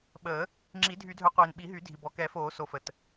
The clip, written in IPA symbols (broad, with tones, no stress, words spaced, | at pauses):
ɓəː˨˩˦ | ŋ͡ǁi˨˩˦dʱy˨˩˦dʱœ˨˩˦ qʷiː˩nɓi˨˩˦ɦy˨˩˦dʱi˩ bɔ˩kɛ˨˩˦foː˨˩˦ so˩fə˩t